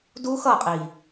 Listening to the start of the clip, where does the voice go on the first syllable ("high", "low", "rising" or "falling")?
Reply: high